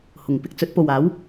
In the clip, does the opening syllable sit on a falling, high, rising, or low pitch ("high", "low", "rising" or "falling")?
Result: low